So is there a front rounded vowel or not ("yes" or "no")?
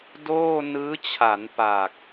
no